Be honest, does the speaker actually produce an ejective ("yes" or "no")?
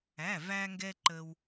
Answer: no